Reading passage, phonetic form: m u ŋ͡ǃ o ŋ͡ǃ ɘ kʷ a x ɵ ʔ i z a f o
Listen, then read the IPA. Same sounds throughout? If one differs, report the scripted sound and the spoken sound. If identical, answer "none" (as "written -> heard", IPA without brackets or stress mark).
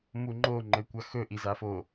none